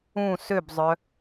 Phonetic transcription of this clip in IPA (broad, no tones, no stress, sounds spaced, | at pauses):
ũ s ø b zˤ œ